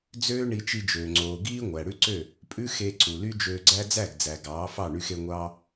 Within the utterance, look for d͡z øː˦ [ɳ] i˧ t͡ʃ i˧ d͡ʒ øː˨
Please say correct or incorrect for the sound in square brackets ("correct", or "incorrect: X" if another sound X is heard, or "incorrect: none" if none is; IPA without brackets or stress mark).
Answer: correct